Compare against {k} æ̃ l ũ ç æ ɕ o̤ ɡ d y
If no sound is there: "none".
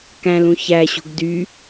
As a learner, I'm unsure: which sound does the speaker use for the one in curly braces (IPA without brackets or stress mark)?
k